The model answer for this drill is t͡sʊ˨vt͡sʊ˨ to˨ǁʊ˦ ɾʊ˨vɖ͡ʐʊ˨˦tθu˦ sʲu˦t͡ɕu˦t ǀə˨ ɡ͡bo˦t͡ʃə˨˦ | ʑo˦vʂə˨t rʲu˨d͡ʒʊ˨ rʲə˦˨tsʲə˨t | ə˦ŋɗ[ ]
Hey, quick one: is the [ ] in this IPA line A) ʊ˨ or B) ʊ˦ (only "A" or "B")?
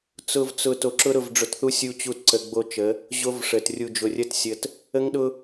B